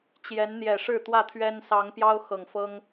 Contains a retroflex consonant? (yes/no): yes